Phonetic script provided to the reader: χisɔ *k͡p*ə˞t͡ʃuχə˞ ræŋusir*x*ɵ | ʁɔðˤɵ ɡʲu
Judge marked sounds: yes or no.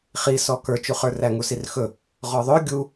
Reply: no, yes

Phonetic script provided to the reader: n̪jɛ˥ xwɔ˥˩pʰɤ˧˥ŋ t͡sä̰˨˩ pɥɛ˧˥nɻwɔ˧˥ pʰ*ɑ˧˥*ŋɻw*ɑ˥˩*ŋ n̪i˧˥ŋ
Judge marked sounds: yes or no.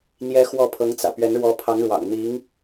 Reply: yes, no

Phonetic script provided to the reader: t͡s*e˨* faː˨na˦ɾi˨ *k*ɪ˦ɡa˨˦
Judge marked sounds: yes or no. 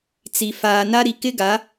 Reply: no, yes

